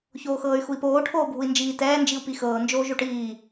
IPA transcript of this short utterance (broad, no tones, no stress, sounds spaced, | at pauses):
ç oː x ɤː y̯ x u i̯ p oː ʈʰ oː bʱ u i̯ n d͡ʒ iː t ɛː n d͡ʒ i u̯ p i x ɤː n d͡ʒ oː ʒ o ʈ iː